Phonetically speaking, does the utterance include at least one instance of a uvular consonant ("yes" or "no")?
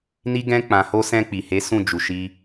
no